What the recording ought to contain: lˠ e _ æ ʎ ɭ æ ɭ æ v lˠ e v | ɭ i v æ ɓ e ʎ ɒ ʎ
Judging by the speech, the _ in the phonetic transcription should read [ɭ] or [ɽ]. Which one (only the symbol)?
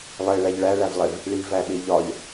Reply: ɭ